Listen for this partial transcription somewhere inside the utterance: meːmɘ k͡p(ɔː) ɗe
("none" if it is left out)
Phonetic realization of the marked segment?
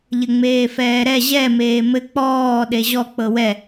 ɔː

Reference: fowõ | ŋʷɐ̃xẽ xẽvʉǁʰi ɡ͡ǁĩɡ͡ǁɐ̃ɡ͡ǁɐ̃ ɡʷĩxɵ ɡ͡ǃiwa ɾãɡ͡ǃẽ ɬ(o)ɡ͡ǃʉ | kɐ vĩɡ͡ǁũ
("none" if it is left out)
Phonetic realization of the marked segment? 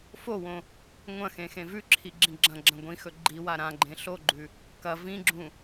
o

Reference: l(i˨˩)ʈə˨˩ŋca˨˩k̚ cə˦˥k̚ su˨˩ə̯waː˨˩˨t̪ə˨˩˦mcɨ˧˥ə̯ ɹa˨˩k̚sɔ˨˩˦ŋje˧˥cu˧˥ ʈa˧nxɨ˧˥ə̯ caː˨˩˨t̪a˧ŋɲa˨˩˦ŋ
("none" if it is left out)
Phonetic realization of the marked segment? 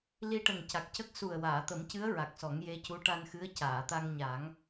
i˧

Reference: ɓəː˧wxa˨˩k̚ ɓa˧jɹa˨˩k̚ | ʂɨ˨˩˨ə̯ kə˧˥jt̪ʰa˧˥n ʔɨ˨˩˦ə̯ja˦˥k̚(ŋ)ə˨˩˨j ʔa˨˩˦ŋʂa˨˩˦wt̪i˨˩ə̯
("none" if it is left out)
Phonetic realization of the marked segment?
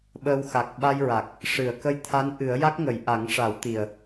ŋ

